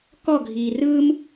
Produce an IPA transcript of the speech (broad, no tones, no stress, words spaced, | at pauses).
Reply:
kɔɡʱiː rɯm